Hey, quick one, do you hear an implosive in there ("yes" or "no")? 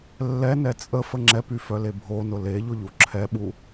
yes